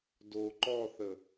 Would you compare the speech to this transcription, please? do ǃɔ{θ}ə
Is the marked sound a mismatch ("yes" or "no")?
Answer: no